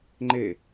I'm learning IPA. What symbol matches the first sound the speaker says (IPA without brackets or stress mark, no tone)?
ŋ͡ǃ